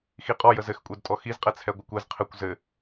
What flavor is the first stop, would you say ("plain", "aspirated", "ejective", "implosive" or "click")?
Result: ejective